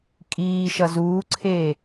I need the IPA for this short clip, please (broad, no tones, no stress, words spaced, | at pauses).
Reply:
kʼiː ʃʌzuːǀʰeː